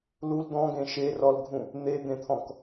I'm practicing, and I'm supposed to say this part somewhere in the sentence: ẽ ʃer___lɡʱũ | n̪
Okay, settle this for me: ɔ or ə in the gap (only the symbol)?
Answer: ɔ